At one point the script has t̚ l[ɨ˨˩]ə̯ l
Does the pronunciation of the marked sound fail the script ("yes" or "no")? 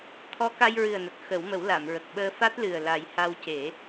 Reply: no